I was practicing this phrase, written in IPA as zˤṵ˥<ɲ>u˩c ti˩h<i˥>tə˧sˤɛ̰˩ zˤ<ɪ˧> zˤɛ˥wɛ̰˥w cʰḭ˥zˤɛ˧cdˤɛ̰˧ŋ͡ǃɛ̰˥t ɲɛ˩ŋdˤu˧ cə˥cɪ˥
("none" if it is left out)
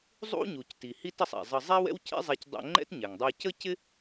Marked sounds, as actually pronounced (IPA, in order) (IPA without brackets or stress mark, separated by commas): ɲ, i˥, ə˧